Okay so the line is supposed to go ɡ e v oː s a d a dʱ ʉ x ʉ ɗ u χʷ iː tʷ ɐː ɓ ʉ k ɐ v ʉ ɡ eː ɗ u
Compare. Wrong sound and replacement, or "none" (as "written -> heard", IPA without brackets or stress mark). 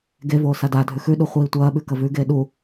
none